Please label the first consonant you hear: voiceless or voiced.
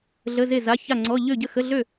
voiced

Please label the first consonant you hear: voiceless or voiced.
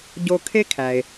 voiced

